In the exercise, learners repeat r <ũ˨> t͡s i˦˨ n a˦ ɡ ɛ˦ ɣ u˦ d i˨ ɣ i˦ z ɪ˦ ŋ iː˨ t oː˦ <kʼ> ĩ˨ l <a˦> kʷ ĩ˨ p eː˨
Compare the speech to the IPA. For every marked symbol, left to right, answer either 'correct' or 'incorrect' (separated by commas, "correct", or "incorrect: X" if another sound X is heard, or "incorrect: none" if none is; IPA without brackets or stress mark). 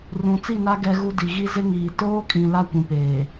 correct, correct, correct